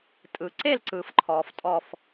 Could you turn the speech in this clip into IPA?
tʼ ɯ˨ ǀ e˥˧ l ǀ ɯː˨ f ǃʰ ɔː˨ f tʼ ɔ˥˧ f

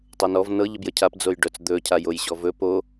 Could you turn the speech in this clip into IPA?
tˤ ɤ n ɔ v n ɤ ʎ ə b j ə cʰ a p d͡z o j ɖ œ t͡s d̪ ɵ cʰ a j o j ɕ ɔ v ɵ p o

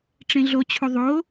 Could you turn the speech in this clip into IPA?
ʈ͡ʂ ẽ ɮ o t͡ɕʰ u ðˤ o

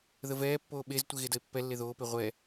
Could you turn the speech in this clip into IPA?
ð ə v ɛː pː oː ɓ e z tʷ e ɣ e d ə e̯ pː ɛ lː e ð oː p e ʁʷ ɛ

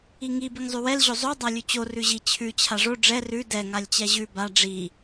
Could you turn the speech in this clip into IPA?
i ŋ i b i ŋ zˤ ʉ w ɛ l ʑ o zˤ o dˤ a lʲ ʉ t͡ɕ o r ʉ ʑ i t͡ɕʰ ʉ t͡ɕʰ a ʐ o ɖ͡ʐ ɛ r ʉ d ɛ ŋ a lʲ t͡ɕ ɛ ʑ ʉ b a ɖ͡ʐ i

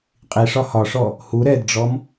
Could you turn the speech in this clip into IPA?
qʼ i ʂ ɒ h ɒ ʂ ɔ | h u ɾ ɛ d ɖ͡ʐ ɔ m

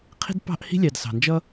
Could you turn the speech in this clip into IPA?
qʰ i̤˥ d p ɑ̤˥ ʔ h i̤˥ lʲ ɑ˨ d s ɑ̤˩ n d͡ʒ ʌ˥

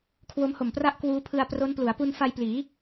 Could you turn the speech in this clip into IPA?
kʰ w o˦˥ m h o˨˩ m p r a˥˩ ʔ k w uː˦˥ pʰ ɯ˧ a̯ p r o˦˥ n p l u˩˦ a̯ p u˧ n f a˧ j p l iː˩˦

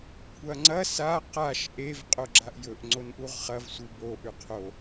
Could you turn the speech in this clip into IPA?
kʷʰ ɐ ŋ͡ǀ ɐ s a q a ʃ ʔ e v qʼ o ɡ͡ǁ a ʔ j ɵ ʔ ŋ͡ǀ o n ʔ u ʁ χ ɐ v sʷ i b o ʔ ʉ qʰ o

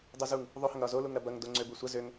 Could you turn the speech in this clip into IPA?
dˤ u z u ŋ | ðˤ o h ɐ ŋ ɾ ɒ z o l u ŋ ɾ ɐ b ɐ ŋ d o ŋ͡ǀ ø b u sʷ ɐ z ø ŋ

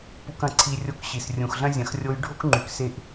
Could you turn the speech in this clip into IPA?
p u˧ k ɐ̃˩˧ ǀʰ i˧ rʲ o˧˥ k ɕ i˩ s rʲ ũ˩ x ɮ ɐ̃˥ zʲ ɐ̃˩ x rʲ o˧˥ j ɖʱ o˥ k ŋ͡ǃ y˩ k s e˧ ʔ

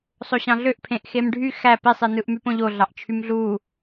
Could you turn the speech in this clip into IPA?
sˤ o ɕ ɑ̃ ɮ ø ʔ pʰ ẽ ʔ x e m ɖʱ y x æ p i sˤ i n ɯ ʔ m y p õ ʎ o ɮ ɑ ʔ t͡ʃʰ y m ɮ u

